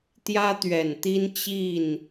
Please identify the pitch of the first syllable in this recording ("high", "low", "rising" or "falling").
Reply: high